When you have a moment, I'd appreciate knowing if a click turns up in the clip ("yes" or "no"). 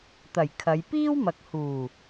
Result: no